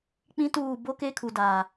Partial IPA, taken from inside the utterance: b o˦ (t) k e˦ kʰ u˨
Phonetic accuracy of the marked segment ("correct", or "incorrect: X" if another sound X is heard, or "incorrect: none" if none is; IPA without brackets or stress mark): incorrect: none